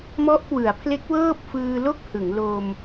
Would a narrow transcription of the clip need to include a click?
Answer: no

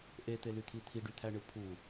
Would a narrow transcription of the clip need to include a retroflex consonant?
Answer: yes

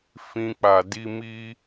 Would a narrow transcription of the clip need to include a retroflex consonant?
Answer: no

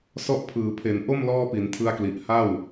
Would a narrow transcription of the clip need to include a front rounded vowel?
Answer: no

